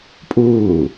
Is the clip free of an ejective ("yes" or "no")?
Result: no